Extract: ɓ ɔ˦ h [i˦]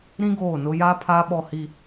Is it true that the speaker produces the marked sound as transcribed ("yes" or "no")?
yes